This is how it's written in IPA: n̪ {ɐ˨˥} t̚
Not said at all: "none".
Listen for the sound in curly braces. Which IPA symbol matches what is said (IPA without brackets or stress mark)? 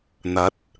ɐ˨˥